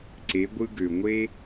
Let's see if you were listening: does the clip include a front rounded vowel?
yes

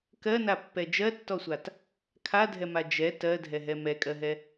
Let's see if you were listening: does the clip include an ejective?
yes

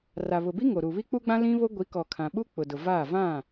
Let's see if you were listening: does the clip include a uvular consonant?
no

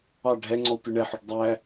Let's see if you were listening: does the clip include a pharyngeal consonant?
yes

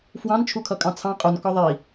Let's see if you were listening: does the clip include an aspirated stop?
yes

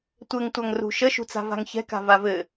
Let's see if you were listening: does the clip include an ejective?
no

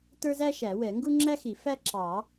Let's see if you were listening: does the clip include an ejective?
no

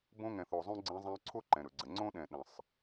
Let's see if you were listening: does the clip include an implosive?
yes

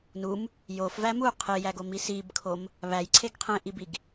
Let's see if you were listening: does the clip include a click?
yes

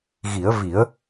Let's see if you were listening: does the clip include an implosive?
no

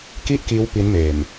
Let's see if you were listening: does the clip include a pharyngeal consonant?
no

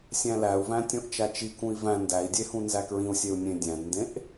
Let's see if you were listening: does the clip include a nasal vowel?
yes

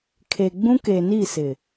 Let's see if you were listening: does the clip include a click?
no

